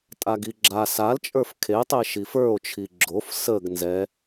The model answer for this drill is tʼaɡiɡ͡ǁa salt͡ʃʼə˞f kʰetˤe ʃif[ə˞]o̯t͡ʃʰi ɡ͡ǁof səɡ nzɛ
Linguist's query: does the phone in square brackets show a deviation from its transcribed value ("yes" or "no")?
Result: no